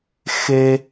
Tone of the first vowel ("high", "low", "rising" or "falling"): high